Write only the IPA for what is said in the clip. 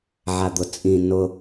ʕ a d̪ ʊ t͡sʼ ĩ n ʊ

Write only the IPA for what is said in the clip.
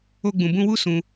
o˦ ɡ͡b ũ˧ b ũ˦ w u˦ s ũ˧

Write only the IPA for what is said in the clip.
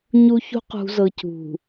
ɲ u˦ ç ṳ˦ q ṳ˨ z ɤ˨ c ṳ˨

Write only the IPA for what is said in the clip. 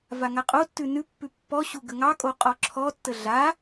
v a ŋ a qʼ o tː ʉ n ʉ pː ʉ pː ɔ ɕ u ɡ ə ŋ ɑ kʼ o qʼ ɔ ǁʰ ɔ tː ə ɮ a

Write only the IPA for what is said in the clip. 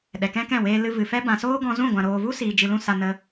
ɗ ɛ˨ k ɛ̃˦ k ɛ̃˦˨ w eː˨ l ɨ˨ v ɨ˨ f ɛ˦ b ã˨ s oː˦ ɡ ɔ̃˧ z ũ˦˨ ɡʷ ã˨ ɾ oː˨ v u˦ s iː˨ d͡ʒ ɨ˧ l ũ˦ s a˧ n ə˧

